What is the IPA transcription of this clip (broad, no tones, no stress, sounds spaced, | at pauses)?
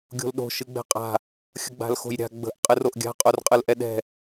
ɡʲ o̤ l ɗ o̤ ʃ ɨ ɡ͡b ɛ̤ qʼ a̤ | xʲ ə ɡ͡b a̤ l x o̤ j ɾʲ a̤ ɡ͡b ə̤ ʔ qʼ ɨ r o ʔ ɡʲ a̤ qʼ o r qʼ ɯ l ʔ ɛ ɗ ɛ̤